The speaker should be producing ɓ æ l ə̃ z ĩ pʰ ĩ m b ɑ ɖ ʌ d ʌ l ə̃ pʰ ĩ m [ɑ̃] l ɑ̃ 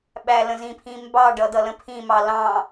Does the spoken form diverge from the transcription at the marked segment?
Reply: yes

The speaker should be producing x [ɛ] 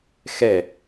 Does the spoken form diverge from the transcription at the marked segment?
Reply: no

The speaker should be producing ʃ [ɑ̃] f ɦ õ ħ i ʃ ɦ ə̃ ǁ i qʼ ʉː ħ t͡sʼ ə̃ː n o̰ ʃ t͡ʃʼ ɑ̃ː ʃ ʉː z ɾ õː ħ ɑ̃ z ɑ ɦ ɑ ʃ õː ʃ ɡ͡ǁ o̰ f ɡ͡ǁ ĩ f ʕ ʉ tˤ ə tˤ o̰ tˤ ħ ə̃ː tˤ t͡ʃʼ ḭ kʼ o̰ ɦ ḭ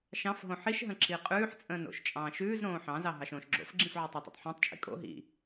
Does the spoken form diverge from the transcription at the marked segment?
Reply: no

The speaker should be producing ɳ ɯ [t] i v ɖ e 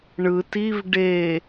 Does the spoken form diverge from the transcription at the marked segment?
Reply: no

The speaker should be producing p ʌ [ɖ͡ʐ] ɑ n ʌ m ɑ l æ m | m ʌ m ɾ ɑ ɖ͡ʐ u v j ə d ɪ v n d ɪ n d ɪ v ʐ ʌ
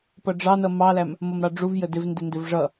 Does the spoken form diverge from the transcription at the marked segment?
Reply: no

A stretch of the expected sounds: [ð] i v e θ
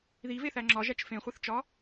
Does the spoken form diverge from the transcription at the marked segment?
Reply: no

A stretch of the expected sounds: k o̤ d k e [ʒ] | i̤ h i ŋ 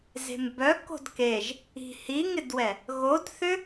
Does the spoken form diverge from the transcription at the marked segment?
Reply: no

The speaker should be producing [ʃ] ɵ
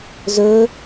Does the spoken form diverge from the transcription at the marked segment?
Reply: yes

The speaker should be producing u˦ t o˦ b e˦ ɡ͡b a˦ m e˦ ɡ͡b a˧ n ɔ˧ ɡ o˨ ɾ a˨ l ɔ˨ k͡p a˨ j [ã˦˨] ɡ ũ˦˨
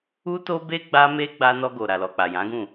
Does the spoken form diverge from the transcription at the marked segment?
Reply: yes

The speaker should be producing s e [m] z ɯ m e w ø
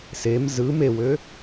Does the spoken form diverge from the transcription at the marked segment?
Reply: no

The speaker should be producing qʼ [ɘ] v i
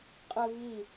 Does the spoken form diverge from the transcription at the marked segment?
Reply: no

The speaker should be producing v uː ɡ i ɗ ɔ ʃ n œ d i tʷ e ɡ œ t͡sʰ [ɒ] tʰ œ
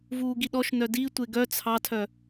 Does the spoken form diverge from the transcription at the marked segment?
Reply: yes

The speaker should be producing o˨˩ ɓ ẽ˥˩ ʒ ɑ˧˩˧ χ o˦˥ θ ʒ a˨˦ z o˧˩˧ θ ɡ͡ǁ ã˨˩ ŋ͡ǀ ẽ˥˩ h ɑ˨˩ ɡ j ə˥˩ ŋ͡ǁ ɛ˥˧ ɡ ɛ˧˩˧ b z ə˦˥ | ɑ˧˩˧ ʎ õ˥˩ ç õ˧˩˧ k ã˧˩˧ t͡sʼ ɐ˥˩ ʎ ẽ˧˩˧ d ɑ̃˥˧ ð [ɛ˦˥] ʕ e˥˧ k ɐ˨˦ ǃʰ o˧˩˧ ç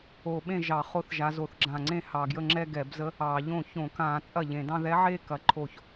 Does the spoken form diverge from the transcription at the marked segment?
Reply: no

